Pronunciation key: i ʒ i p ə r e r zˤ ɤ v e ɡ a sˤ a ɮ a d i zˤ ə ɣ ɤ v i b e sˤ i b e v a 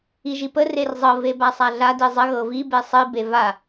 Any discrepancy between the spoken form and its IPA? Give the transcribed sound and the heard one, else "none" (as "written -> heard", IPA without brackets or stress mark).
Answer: ɡ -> b